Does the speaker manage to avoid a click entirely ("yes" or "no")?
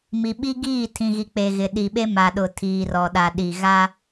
yes